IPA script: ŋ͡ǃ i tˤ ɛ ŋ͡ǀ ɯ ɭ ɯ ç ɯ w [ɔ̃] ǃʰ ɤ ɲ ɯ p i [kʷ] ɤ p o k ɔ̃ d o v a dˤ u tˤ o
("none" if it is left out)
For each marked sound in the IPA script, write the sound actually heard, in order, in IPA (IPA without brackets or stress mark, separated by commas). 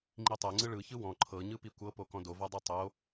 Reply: ɔ̃, kʷ